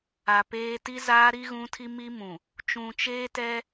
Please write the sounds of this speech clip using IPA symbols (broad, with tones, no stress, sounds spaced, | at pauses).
a˨ p eː˦ t i˦ z aː˦ ɾ i˦ ɣ ũ˦ tʰ i˦ m i˦ m ũ˨ | t͡ʃ ũ˨ t͡ʃ eː˦ t ɛ˦